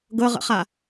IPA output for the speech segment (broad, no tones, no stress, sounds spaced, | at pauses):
ɡ ɤ ʁ ə̰ χ a